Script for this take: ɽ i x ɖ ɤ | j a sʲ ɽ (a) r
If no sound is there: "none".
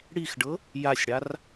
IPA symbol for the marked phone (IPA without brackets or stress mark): a